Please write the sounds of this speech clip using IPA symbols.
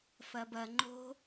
f ɐ b ɐ ŋ͡ǃ o̤

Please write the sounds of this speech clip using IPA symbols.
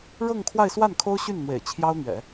ɻ ɤ˥˧ ŋ kʰ w a˥˧ ɪ̯ s w a˥˩ n kʰ o˥ ʊ̯ ɕ y˥˩ n n̪ w ḛ˨˩ ɪ̯ t͡ɕʰ j ɑ˥ ʊ̯ n̪ ɥ ɛ̰˨˩˦

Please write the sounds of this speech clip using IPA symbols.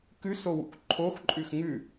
k ʉ s o w ṵ k ǃʰ o x ǃʼ ʉ x ŋ ʉ

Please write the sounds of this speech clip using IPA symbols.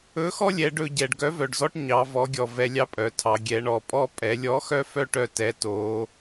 ɵ˧˥ x ɔ˥ lʲ ɛ˩˧ ɖ ɵ˧ ɟ ɛ˩ ɖ ɡ œ˧˥ v œ˩ ɖ z ɔ˥ ʈ ɲ ɑ˩˧ v ɔ˩˧ ɡʲ ɔ˩ v ɛ˧ lʲ ɑ˥ pʼ œ˩˧ tʰ ɑ˩˧ ɡʲ ɛ˩˧ ɳ ɔ˩ pʼ ɔ˥ pʼ ɛ˩˧ lʲ ɔ˧˥ x œ˥ f œ˥ ʈ œ˥ t ɛ˧˥ t o˧˥

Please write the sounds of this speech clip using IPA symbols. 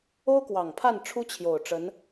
o˥ ʊ̯ k w ɑ˨˩ ŋ pʰ a˥˩ n ʈ͡ʂʰ u˥ t͡ɕʰ j o˨˩ ʊ̯ ʈ͡ʂ ə˧˥ n

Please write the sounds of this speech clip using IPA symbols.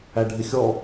æ ɖʱ ɪ xʲ ɔ

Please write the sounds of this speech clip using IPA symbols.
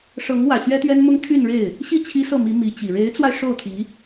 ʂ ɤ˧˥ ŋ w ä˨˩ ɕ ɥ ɛ˥ t̪ ɥ ɛ˥ n m ʊ˥ ŋ t̪ʰ y˥˧ n ɻ e˥˩ ɪ̯ | ɕ i˥˩ t͡ɕʰ i˥ s ɤ˥˩ m i˧˥ m i˧˥ t͡ɕ i˨˩ ɻ e˧˥ ɪ̯ t͡s w a˧ ɪ̯ ʂ o˥˩ ʊ̯ t̪ʰ i˧˥

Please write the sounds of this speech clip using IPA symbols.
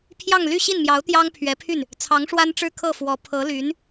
pʰ j ɑ˥˧ ŋ l y˥˧ ɕ i˥˩ n m j ɑ˧˥ ʊ̯ t̪ j ɑ˥ ŋ pʰ ɥ ɛ˧˥ pʰ y˥˩ n | t͡sʰ ɑ˧˥ ŋ ʂ w a˥ n ʈ͡ʂ ɻ̩˥˧ kʰ ɤ˥˩ f w ɔ˧˥ pʰ ɤ˧˥ l y˧˥ n

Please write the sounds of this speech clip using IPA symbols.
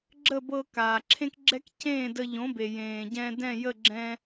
ɡ͡ǁ ə˥˩ b ɤ˧ k aː˩ ǁʰ ẽ˥ k ɡ͡ǁ ɛ˥ k c ẽː˥˩ d ə˧ ʎ õ˩˥ b e˩ j ẽː˩ ɟ ɛ̃˧ d ɛ̃˥˩ j ə˥˩ ɡ͡ǁ ɛ̃˧

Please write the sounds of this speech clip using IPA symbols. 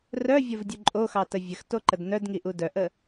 r œ vʲ ɐ v dʲ u ǃʼ o x ɑ t ə vʲ ə x t o ǃ ə d n œ d ŋ i ʔ u d œ ʔ ə

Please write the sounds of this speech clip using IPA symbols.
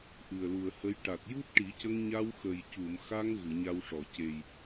ʔ ɨ˨˩ ə̯ l u˨˩ ə̯ h ə˧˥ j ʈ a˨˩ t̚ j u˦˥ t̚ ʈ i˨˩˦ c ə˧ ŋ ɲ a˧ w x ə˨˩ j c u˨˩˨ m x a˧ ŋ ɣ ɨ˨˩˨ ɲ a˧ w ʂ ɔ˨˩˨ c e˨˩ j

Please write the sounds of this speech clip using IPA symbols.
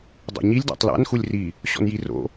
dˤ o̰ ɲ i lʲ d æ̰ tˤ l a̰ n x u lʲ r i | ɕ ɔ̰ n j i r o̰

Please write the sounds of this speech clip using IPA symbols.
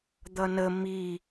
d̪ ʌ n ə m i

